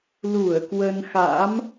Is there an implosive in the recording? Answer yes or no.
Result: no